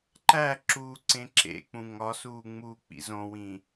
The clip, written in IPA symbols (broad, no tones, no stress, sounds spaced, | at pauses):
ǃ æ ǁ uː ǀ ẽ ǁ ḛ k͡p ũ ŋ ɒ s uː ŋ͡m uː k͡p ḭ z õ w ĩ